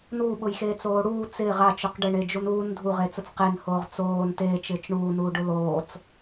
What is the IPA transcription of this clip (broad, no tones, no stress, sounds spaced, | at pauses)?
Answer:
n uː ɓ ʊ j x eː t͡s oː ɽ uː t͡s ɪː ʁ a t͡ʃ ʊ q ɖ ɪ ɳ e d͡ʒ u n uː n dʱ u ʁ e t͡s ʊ t͡s q e n h oː ʁ t͡s oː n t eː t͡ʃ ɪː t͡ʃ ɳ uː n uː ɖ ʊ l oː t͡s